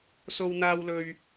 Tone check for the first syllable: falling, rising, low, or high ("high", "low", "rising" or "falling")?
high